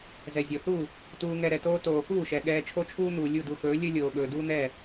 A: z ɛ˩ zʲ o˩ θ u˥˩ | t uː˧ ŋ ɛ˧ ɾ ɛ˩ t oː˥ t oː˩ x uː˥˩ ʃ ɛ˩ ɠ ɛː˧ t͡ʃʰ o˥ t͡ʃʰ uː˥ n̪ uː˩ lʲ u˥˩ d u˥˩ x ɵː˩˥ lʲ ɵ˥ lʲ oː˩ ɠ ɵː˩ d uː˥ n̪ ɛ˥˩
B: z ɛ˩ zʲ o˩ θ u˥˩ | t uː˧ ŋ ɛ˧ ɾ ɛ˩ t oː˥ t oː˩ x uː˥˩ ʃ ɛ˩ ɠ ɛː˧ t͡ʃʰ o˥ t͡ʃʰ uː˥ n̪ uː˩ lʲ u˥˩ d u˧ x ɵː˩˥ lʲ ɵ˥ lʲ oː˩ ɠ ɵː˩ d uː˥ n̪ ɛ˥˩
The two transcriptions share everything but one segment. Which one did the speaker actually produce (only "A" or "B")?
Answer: B